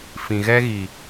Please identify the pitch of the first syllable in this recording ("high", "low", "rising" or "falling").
low